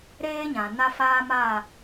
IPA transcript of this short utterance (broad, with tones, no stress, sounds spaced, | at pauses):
ɾ eː˦ ɲ ã˨ n a˦ f aː˦ m a˦˨